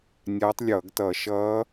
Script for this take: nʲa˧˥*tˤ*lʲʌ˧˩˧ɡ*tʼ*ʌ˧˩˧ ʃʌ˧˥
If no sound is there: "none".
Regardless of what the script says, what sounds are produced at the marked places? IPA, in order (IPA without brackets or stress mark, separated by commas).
tˤ, t